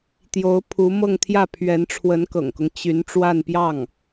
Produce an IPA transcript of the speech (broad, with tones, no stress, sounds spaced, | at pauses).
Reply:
t̪ j o˧˥ ʊ̯ pʰ u˧˥ m ɤ˥˧ ŋ t̪ʰ j ä˥˩ pʰ ɥ ɛ˧˥ n ʈ͡ʂʰ w ə˧˥ n k ɤ̰˨˩ ŋ k ʊ˦ ŋ t͡ɕ y˧˥ n ʈ͡ʂ w a˥˧ n p j ɑ˥˩ ŋ